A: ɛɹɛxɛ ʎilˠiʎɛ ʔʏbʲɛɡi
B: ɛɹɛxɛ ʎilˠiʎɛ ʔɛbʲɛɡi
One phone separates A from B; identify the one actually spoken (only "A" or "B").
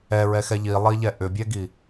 A